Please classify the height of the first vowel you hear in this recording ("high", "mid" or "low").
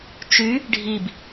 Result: high